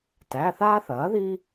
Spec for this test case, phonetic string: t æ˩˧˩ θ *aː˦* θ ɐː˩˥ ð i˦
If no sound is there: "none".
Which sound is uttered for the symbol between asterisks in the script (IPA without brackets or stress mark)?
aː˦